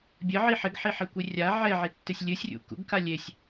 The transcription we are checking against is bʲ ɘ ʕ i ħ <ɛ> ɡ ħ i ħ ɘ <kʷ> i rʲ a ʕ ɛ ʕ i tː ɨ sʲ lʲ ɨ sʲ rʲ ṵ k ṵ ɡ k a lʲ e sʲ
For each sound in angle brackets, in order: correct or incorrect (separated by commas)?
incorrect, correct